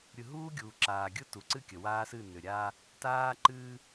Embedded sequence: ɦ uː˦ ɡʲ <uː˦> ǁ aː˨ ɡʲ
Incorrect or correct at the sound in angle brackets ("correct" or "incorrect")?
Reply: incorrect